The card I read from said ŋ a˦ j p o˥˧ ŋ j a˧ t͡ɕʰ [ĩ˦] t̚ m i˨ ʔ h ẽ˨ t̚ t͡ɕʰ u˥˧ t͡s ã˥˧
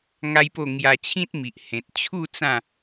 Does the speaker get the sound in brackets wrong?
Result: no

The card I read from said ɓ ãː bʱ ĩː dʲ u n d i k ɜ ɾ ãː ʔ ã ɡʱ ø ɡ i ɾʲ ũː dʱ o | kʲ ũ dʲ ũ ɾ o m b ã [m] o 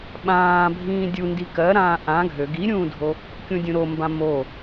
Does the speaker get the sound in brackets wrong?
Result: no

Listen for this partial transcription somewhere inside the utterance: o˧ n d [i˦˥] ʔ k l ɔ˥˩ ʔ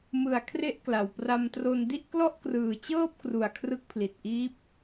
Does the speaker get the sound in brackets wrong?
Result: yes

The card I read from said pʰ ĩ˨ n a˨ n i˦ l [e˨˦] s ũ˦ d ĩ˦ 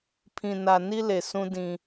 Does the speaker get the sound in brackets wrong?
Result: yes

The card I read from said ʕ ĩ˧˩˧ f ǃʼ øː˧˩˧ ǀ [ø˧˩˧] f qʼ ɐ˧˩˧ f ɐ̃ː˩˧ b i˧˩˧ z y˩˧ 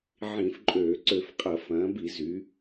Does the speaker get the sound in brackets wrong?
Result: no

